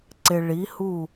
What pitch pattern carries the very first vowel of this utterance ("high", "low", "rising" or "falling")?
low